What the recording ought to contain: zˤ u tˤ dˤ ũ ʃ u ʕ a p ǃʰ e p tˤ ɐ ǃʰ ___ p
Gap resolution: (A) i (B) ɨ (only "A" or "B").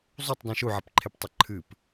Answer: B